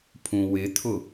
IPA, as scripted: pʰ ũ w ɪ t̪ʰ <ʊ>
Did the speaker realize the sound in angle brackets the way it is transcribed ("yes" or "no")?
yes